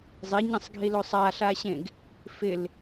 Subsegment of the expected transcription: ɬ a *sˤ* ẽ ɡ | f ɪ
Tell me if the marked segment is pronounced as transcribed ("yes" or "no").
no